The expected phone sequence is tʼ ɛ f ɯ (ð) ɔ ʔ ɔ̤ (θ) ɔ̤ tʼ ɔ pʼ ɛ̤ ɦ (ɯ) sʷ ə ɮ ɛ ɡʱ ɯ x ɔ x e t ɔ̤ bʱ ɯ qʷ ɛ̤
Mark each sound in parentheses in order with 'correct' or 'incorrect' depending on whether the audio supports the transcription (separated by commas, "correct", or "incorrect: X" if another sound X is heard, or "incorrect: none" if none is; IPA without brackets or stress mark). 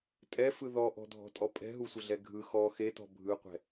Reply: correct, incorrect: dʱ, incorrect: u